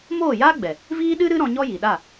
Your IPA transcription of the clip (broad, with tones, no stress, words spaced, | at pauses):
moː˦˨jaː˦ɡ͡bɛ˨ | viː˦ɗɨ˦ɾɨ˦ ɾɔ̃˧ɲɔ˦ji˨ ɗa˦˨